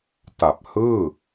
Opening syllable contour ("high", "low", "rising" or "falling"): low